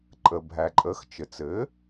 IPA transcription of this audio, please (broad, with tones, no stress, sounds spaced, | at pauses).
ǃʼ ə˩ bʱ æ˩ ǃʼ ə˩˥ x t͡ʃ ɘ˩ t͡s ɘ˩˥